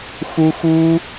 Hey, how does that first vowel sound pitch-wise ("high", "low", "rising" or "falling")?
high